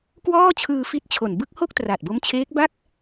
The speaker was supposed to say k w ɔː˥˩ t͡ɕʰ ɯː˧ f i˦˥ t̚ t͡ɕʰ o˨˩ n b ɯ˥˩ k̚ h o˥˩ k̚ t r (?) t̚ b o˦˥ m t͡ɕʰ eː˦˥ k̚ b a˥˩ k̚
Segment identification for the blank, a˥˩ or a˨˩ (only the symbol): a˨˩